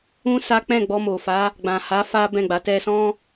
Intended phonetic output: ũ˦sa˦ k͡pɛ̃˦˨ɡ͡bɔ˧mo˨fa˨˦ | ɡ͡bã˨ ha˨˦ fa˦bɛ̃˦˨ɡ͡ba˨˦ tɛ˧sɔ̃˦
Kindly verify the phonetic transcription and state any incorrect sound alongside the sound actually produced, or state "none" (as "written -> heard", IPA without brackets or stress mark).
none